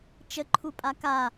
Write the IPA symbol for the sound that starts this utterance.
t͡ʃ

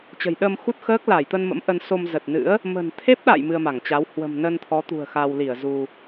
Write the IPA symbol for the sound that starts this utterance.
t͡ɕ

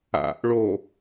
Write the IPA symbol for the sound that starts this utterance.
a̰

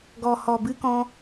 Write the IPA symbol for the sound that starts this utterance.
ɡ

